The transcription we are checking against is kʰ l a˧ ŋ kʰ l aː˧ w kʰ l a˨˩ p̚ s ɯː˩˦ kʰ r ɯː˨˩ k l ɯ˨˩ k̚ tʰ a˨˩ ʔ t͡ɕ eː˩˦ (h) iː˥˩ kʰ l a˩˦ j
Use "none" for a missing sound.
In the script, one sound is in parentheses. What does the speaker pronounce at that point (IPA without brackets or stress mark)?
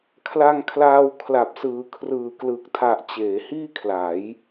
h